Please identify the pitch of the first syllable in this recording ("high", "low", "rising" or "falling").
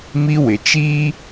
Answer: high